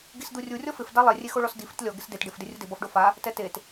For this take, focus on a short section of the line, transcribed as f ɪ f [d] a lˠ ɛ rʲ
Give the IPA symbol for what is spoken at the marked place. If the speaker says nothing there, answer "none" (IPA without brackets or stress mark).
d